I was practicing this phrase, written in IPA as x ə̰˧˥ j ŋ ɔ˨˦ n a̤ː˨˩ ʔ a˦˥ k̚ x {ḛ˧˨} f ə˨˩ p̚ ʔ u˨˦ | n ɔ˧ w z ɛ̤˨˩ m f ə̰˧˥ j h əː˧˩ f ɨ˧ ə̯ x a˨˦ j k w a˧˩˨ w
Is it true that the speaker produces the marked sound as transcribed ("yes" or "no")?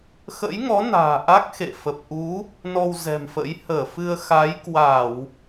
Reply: yes